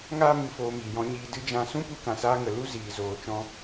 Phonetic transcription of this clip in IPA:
ŋ aː˦ m ɨ˧ f oː˧ m iː˨ j ɔ̃˧ ɲ iː˧ d ɨ˦ d͡ʒ ã˦˨ s ũ˦ p u˧ k ã˨ s aː˧ ŋ ə˨ l u˦ z iː˨ z oː˨ t͡ʃ ɔ̃˧

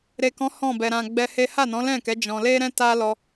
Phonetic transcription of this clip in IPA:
ɾ e˨ k ɔ̃˨˦ h ɔ̃˦˨ b ɛ˨ ɾ ã˨ ɡ͡b ɛ˧ h e˦ h a˦˨ n ɔ̃˨˦ l ɛ̃˦˨ k ɛ˨˦ d͡ʒ ɔ̃˧ l e˦ ɾ ɛ̃˦ t a˦ l ɔ˧

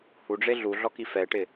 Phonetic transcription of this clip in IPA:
h u ɖ͡ʐ e ɮ u ɮ ɔ k i f ɛ ʈ ɪ

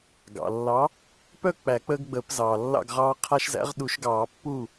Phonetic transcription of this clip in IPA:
ɡ ɑ̰˩ lː ɑ˨˥ | p œ˥˩ k͡p æ˨˩˦ k͡p əː˦ ɡ ɡ͡b əː˨˩˦ p z ɑː˩ lː ɑ̰˥˩ ɡ ʁ ɑː˦ qʰ a˦ ʃ z æ̰˨˥ ʁ ɗ u˨˩˦ ʃ ɡ ɑː˨˩˦ pː u˥˩

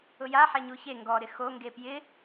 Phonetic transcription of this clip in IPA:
ʊ j a ħ ɛ ɲ u ç e ŋ ɡ ɔ ɾ ɪ x o ŋ ɡ e p j ɪ

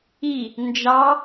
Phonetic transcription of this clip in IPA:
i | n d͡ʒ ɑ

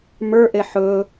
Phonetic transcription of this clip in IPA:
m ə˞ ʔ e ħ ɵ

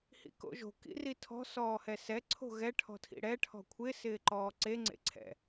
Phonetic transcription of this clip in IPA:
h ḭ k o̰ ʒ o̤ k ḭ r i tʰ ɔ̤ s ɔː h ɛ s ɛ ǀʰ o̤ ɣ ɛ ʈʰ ɔ̤ tʰ ḭ ɽ ɛ ʈʰ ɔ̤ kʷʰ ɪ s ɪː ǃ ɔː ǀ e ŋ͡ǀ ḛ ǀʰ ɛ̰

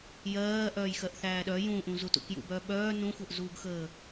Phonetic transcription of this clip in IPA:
j ɜː ʔ œː j x ɜ ʔ θ æː ɗ œ j ũ ʔ ũ z u t ṵ k j ṵ b œː ɓ œː n ũ xʷ œ ʔ z uː ɡ x əː

